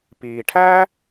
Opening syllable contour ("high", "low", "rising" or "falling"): low